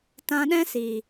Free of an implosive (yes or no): no